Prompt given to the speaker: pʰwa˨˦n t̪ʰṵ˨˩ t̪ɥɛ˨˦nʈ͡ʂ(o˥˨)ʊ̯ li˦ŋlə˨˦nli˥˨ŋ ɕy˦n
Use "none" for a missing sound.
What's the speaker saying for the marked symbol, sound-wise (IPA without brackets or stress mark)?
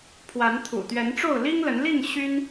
o˥˨